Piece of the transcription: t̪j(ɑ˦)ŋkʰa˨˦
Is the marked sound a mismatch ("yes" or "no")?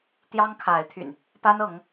no